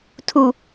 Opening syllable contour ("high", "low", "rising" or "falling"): low